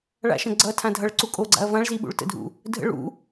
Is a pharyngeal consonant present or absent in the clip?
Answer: absent